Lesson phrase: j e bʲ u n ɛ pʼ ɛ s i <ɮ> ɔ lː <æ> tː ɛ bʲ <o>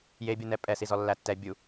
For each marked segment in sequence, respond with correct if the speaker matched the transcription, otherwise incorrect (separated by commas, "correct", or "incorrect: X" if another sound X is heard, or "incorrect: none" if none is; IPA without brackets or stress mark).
incorrect: z, correct, incorrect: u